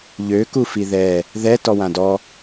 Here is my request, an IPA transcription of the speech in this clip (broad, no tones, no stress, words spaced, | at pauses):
ʎø kufiðɛ | ðɛ tɔwãdɔ